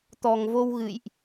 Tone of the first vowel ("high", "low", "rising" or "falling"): low